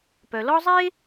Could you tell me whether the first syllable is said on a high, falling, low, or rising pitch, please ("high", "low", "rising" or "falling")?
low